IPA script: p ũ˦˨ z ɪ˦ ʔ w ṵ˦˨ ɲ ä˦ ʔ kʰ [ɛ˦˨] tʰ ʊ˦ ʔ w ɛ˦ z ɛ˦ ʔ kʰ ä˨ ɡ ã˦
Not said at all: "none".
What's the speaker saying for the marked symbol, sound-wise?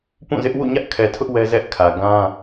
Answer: ɛ˨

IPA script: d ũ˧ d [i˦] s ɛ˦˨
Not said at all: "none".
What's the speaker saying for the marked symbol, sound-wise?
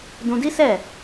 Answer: i˦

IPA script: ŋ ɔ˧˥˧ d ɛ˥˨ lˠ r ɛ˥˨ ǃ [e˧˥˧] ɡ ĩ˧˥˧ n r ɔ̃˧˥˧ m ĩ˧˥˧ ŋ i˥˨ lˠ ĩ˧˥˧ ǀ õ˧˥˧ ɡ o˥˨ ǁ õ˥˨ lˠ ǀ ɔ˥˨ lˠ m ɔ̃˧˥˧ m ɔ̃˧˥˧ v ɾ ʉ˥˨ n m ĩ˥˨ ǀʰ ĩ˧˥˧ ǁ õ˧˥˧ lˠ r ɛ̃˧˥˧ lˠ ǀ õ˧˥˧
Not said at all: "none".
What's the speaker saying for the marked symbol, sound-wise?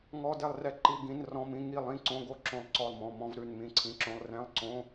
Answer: i˧˥˧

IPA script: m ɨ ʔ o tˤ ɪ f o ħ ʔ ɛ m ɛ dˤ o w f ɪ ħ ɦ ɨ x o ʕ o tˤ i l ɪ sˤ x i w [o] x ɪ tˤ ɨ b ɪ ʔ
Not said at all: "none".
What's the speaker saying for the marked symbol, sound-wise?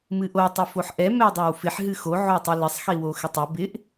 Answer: o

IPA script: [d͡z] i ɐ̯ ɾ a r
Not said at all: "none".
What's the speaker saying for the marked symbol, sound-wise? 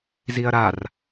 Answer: z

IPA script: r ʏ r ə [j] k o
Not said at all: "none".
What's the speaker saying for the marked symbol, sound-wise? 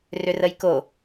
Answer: j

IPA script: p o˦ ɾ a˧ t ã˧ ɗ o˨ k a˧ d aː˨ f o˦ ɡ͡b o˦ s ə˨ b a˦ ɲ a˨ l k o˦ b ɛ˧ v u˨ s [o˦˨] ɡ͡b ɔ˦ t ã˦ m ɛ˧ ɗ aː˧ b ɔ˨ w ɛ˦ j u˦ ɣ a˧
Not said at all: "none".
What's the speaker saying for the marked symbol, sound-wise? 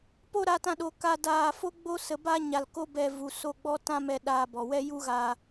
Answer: o˦˨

